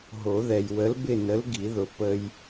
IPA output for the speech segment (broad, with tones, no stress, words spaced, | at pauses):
ɦo˨˩˦ðɛ˨j wə˨˥lbɪ˥˨nə˨˥l ɡi˨˩˦ðʊ˨ pə˦j